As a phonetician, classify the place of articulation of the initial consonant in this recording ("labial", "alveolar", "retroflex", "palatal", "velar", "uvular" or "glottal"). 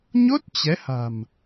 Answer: palatal